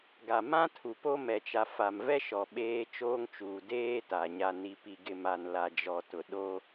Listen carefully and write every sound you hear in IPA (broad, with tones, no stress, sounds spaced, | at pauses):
ɡ a˨ m ã˦ tʰ u˨ p o˦ m ɛ˨ t͡ʃ a˨ f a˨ m v ɛ˦ ʃ ɔ˨ ɓ eː˦ t͡ʃ oː˦ ŋ t͡ʃ uː˨ d eː˦ t a˨ ɲ a˨ n i˨ p i˨ ɡ ɪ˨ m a˨ n l a˨ d͡ʒ ɔ˨ t ʊ˨ ɗ o˦